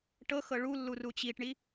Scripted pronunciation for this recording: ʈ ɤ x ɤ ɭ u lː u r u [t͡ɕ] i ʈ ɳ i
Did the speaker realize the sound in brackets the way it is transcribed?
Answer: yes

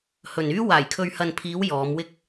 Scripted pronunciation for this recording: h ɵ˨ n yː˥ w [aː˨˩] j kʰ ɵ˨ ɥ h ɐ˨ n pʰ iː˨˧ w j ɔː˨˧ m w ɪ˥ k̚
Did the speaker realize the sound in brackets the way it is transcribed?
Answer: yes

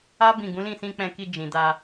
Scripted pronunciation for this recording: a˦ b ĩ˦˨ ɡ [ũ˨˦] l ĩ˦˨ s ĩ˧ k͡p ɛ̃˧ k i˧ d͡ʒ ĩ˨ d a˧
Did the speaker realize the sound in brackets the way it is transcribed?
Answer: yes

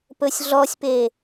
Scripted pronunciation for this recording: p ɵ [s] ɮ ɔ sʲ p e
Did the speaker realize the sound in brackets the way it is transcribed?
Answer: no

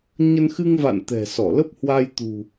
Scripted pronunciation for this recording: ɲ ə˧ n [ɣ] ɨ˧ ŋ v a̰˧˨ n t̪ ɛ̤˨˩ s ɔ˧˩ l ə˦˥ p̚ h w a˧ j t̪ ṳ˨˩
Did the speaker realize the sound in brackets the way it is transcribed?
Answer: no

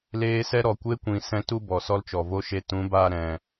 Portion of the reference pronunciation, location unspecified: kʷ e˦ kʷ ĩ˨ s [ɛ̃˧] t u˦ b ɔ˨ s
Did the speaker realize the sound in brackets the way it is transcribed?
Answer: yes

